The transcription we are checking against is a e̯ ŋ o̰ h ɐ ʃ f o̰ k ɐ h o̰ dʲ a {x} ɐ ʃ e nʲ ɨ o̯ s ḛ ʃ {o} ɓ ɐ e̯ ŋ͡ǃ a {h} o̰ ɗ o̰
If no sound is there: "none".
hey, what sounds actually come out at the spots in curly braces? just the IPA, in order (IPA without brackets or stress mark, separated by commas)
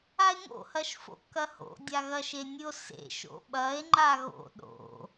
ɣ, o̰, ɣ